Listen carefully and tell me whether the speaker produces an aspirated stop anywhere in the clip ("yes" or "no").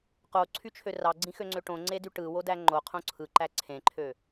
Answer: yes